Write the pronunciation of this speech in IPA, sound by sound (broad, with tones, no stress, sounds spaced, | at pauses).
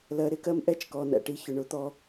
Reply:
l ɜ˨ ɾ ɪ˦ k ɜ˦ m ʔ ɛ˦ t͡ʃ k ɔ˨ n æ̰˨ ʈ i˦ ç ʊ˨ ɳ ʊ˦ t̪ ɔ˦